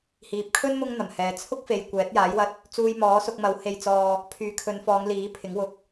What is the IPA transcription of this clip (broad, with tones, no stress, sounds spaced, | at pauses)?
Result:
h iː˨ p̚ kʰ ɵ˥ n m ʊ˥ ŋ n̪ ɐ˨˩ m h ɛː˨ t͡sʰ ʊ˥ k̚ f e˨ j kʷ ɛː˨˥ t̚ j aː˨˥ j w ɐ˧ t̚ | t͡s uː˧ j m ɔː˨˥ s ʊ˧ k̚ m ɐ˨˥ w h e˧ j t͡s ɔː˧ | pʰ yː˨˥ kʰ ɵ˨˧ n f ɔː˨˧ ŋ l iː˨˥ pʰ ɪ˨˥ ŋ w ʊ˨ k̚